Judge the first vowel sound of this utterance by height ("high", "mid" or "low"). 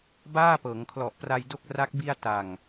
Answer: low